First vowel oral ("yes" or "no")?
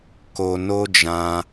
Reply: yes